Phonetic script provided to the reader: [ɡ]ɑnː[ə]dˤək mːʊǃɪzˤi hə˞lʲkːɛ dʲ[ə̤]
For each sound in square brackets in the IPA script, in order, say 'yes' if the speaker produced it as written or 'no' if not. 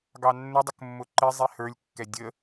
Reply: yes, yes, no

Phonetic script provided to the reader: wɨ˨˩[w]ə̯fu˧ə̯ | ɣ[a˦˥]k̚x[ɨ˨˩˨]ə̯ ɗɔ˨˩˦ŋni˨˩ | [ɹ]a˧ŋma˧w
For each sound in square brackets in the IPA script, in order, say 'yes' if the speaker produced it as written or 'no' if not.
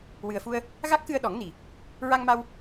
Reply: no, yes, no, yes

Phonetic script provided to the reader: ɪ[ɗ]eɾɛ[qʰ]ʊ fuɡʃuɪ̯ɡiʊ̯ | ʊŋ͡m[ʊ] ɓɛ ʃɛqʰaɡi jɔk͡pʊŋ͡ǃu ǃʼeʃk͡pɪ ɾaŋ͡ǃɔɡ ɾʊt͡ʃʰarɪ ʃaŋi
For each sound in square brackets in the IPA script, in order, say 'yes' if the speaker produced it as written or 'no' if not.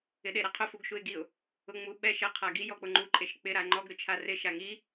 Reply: yes, yes, no

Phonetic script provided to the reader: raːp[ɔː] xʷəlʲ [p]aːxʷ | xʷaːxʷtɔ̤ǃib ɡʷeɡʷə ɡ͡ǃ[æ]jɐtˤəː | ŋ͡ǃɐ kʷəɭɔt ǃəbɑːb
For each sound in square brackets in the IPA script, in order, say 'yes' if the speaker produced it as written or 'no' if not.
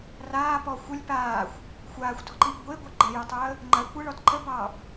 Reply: no, yes, no

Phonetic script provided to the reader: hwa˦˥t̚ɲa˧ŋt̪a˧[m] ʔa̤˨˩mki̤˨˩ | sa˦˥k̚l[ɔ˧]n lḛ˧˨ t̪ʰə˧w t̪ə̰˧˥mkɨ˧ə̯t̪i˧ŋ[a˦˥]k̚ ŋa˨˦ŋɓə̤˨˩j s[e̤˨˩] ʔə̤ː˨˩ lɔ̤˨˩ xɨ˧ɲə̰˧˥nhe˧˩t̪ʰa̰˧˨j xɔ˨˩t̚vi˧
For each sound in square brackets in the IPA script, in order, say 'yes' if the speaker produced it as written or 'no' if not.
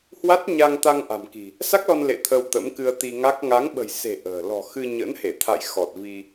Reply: no, yes, yes, yes

